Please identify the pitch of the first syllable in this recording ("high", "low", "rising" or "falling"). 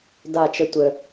falling